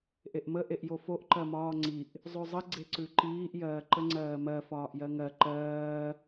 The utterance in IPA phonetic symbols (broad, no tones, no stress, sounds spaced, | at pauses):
ʔ e ʔ m ə ʔ e ʔ j o f o ʔ ǃ ɜ m ɒː ŋ͡ǀ i ʔ | zˤ ʉ zˤ ə ɡ͡ǀ e ǀ ʉ ǃ iː ʔ j ɜː ǃ ə ŋ͡ǀ ɜː m ɜ f ɒː ʔ j ɜ ŋ ɜ ǃ ɜː